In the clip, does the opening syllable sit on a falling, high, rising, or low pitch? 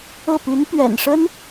falling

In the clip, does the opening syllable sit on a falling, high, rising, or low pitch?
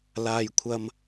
low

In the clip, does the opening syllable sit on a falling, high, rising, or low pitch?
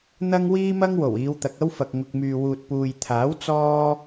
high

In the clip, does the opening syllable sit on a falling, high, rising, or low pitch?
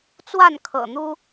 falling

